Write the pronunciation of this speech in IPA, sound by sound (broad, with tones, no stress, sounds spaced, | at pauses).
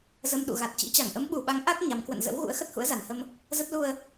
z ə˧ m ɗ ṵ˧˨ ɣ a˨˩ t̚ t͡ɕ ḭ˧˥ t͡ɕ a˧˩ ŋ ʔ ə˨˦ m ɓ u˨˩ ɓ a˨˦ ŋ ʔ a˦˥ k̚ ɲ a˨˦ m k w ə̰˧˨ n z ə̰˧˥ w ɣ ṵ˧˥ ə̯ x ə˦˥ t̚ h ṵ˧˥ ə̯ z a˨˩ n h ə˧ m | z ə˦˥ t̚ l u˧ ə̯